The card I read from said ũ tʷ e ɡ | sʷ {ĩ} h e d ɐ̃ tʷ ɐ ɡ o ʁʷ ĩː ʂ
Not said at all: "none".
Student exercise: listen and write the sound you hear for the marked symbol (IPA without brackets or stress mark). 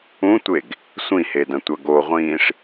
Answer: ĩ